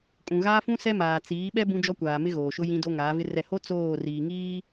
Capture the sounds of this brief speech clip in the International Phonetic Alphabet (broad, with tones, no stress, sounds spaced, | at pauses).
kʼ ũ˨ ɣ aː˦ f ũ˦ s ɛ˦ m aː˨ t͡s iː˨˦ ɓ ɛ˦ b ũ˦ d͡ʒ ɔ˦ kʷ aː˨ m ɪ˦ ɣ oː˨ ʃ ʊ˦ j ĩ˦ d o˦ ŋ aː˨˦ v ɪ˦ r ɛ˦˨ h o˦ t͡s oː˦˨ r iː˨ ŋ iː˦